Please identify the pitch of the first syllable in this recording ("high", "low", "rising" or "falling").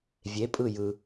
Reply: rising